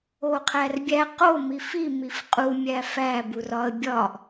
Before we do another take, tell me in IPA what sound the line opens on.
o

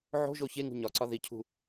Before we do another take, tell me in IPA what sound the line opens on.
ʕ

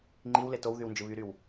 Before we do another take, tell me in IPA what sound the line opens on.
ŋ͡ǃ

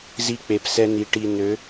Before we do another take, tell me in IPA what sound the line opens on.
z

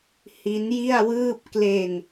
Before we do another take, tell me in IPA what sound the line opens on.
h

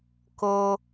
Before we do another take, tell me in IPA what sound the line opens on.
k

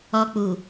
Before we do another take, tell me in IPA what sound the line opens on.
ɔ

